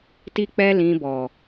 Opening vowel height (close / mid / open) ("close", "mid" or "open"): close